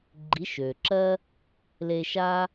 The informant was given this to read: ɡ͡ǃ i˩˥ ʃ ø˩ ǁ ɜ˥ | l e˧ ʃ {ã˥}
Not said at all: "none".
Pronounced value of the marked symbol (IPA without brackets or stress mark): a˥